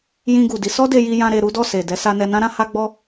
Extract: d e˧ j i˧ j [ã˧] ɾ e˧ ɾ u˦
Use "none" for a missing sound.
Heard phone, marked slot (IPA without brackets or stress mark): ã˧